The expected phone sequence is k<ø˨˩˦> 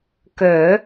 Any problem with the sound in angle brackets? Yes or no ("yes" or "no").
no